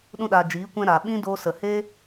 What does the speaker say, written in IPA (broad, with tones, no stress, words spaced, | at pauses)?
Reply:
ɗũ˧ɗa˨ d͡ʒiː˨˦kʷɛ̃˧ ɾa˨ɓĩ˦ do˧sə˨he˦